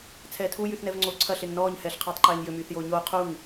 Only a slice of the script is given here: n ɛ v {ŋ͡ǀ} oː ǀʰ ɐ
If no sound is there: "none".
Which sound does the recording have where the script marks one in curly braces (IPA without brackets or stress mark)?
ŋ͡ǀ